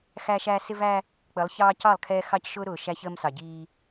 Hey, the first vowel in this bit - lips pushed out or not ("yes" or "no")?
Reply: no